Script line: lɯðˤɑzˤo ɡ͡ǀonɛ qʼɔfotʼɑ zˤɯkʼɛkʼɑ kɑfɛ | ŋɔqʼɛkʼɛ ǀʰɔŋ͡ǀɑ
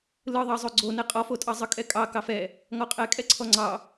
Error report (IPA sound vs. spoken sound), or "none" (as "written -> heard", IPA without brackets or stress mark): none